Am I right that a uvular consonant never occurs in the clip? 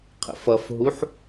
no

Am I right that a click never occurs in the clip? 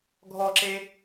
no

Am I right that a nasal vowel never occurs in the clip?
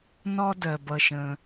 no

